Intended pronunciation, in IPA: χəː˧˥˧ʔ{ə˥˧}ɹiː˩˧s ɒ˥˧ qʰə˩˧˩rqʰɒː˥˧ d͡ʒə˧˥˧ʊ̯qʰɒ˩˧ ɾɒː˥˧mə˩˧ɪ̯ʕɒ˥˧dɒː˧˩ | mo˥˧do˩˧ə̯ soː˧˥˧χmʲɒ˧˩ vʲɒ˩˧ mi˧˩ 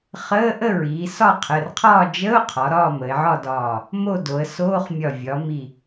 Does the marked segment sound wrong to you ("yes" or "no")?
no